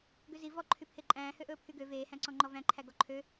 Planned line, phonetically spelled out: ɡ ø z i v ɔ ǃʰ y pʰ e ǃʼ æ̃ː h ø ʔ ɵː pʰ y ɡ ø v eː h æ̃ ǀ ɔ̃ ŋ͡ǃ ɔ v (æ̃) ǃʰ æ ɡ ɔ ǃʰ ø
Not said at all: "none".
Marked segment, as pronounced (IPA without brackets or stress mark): æ̃